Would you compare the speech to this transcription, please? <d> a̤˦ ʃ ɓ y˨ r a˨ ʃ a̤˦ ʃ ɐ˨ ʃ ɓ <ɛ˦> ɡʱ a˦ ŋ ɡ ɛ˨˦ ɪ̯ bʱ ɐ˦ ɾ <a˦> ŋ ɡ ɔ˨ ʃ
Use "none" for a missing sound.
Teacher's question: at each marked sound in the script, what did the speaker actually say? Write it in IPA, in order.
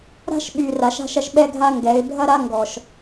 ɾ, ɛ˦, a˦

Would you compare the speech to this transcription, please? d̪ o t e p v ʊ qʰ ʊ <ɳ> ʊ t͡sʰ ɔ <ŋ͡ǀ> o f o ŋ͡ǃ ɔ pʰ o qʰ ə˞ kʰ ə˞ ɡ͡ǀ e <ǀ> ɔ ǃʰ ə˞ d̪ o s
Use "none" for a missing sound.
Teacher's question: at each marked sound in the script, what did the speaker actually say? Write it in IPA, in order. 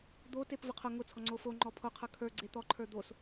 ŋ, ŋ͡ǀ, t̪

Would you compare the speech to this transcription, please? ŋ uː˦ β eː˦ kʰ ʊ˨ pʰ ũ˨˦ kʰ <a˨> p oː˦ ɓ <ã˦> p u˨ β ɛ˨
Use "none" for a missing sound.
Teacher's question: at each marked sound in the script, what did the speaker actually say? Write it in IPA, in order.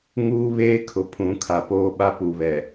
a˨, a˦

